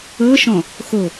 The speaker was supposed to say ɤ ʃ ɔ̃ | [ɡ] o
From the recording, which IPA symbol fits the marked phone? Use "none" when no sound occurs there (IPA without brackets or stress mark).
x